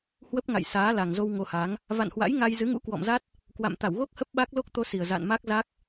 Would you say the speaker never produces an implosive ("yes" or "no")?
no